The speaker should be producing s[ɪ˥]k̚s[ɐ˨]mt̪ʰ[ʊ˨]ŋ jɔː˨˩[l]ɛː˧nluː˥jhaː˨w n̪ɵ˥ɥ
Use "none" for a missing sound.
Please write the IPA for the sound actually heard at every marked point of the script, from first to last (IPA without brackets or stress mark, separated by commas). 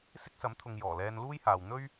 ɪ˥, ɐ˨˥, ʊ˨, l